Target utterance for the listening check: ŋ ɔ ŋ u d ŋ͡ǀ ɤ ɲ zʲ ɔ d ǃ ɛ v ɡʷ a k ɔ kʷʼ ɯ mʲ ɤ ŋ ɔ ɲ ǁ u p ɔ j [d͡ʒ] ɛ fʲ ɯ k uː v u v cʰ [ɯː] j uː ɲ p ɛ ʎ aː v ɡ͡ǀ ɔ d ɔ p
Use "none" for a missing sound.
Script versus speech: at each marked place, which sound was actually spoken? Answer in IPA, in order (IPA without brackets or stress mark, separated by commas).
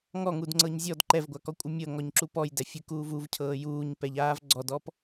d, ɤː